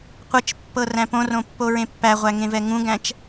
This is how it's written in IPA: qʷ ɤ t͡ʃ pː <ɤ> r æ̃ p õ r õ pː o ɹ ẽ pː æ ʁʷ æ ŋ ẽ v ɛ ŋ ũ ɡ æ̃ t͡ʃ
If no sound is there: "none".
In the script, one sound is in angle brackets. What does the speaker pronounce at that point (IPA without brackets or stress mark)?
ɤ